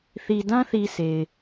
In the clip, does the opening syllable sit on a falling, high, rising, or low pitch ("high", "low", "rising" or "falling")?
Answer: low